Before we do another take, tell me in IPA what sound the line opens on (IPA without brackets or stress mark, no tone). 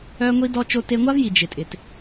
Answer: œ